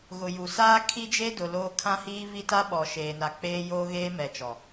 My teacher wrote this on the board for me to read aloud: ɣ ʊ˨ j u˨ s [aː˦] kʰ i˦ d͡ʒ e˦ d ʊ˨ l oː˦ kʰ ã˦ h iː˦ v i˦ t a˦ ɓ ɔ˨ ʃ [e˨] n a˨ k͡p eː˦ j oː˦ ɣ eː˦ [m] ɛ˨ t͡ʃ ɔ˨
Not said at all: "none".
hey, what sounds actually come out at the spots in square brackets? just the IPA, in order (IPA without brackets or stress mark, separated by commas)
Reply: aː˦, eː˨, m